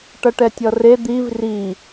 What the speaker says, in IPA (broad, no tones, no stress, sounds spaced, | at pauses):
ʈ ʌ ʈ ɛ tʲ ʌ r e d̪ i v r i